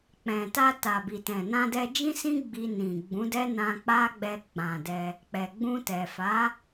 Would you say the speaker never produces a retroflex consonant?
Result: yes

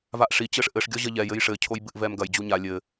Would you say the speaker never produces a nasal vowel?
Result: yes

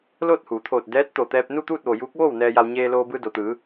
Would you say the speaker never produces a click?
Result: yes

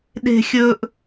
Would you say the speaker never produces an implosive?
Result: no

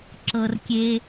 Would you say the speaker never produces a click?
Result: no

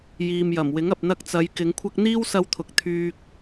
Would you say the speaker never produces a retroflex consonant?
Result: yes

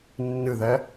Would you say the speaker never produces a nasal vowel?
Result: yes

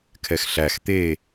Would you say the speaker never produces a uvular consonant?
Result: yes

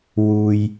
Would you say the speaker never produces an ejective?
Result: yes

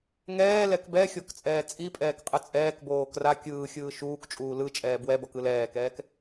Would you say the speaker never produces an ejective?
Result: no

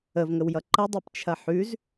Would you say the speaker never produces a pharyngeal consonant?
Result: no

